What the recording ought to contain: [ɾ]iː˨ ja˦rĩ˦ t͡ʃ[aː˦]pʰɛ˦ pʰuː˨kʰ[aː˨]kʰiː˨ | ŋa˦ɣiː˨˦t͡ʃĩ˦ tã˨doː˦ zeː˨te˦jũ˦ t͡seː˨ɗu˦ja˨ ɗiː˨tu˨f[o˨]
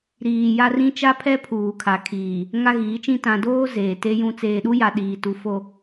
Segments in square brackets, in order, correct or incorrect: correct, incorrect: a˦, incorrect: a˨, correct

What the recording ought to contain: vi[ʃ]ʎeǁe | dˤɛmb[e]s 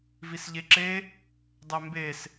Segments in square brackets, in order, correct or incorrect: incorrect: s, correct

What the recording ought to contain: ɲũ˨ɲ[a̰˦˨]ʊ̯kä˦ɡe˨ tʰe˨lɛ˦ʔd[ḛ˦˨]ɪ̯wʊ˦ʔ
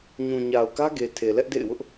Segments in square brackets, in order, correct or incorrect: incorrect: a˨, correct

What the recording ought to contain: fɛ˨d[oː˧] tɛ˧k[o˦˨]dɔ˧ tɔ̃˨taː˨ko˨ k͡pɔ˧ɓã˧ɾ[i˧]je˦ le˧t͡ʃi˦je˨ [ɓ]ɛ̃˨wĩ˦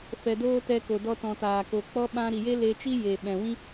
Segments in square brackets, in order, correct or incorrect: correct, incorrect: o˨, incorrect: i˨, correct

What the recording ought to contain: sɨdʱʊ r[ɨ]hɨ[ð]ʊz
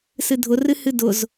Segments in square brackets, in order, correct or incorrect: correct, incorrect: d

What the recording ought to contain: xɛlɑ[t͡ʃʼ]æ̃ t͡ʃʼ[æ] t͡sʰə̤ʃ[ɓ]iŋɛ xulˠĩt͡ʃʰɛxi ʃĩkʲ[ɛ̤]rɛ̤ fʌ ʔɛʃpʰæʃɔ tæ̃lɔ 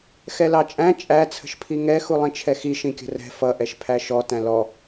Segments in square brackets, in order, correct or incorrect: correct, correct, incorrect: pʰ, incorrect: ə̤

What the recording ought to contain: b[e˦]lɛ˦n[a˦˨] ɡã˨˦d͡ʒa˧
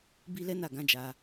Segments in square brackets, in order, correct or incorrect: incorrect: i˦, correct

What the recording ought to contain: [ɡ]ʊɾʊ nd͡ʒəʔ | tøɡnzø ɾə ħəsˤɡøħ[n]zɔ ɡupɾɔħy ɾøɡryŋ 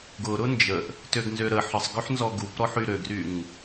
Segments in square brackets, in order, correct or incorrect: correct, correct

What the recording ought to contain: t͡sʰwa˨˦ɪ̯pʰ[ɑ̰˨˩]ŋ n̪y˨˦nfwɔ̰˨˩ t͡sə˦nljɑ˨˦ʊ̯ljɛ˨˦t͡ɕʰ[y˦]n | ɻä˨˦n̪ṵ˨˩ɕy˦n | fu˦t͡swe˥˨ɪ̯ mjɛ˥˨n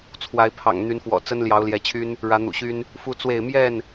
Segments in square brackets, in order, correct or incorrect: correct, correct

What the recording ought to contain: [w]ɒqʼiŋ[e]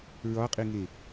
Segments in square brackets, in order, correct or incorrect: incorrect: ɹ, correct

